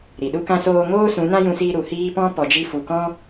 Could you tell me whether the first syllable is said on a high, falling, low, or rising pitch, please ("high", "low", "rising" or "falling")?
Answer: low